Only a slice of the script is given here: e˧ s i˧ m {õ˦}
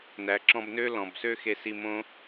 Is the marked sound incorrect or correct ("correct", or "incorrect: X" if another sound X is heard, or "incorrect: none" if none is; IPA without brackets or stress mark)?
correct